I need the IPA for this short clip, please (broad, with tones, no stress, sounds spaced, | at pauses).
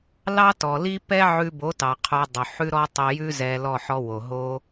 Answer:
l ɑ˦ t ɔ˨ l i˦ p ɛ˦ ʕ ʉ˧ b o˨˦ t ɑ˨ qʰ o˧ dˤ o˨ ħ ʉ˦ ɾ ɔ˦ tˤ i˧ j ʉ˦ z ɛ˧ l ɔ˦˨ ħ ɔ˧ w o˨ ɦ o˦